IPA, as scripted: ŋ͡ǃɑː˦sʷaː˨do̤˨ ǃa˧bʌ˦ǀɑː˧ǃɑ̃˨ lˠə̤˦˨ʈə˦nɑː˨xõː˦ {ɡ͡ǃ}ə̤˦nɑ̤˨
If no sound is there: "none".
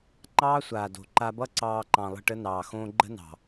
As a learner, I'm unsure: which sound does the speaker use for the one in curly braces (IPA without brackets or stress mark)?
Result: ɡ͡ǃ